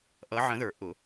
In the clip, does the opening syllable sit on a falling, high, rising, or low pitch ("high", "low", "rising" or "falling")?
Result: rising